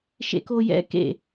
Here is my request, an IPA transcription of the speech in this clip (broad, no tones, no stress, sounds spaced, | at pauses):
ʃ ḛ k o j ɛ̰ k ḛ